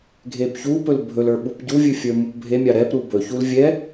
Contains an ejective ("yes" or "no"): no